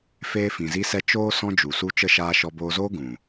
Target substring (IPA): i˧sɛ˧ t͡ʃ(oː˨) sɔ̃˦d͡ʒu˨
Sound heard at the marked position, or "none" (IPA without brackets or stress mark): oː˦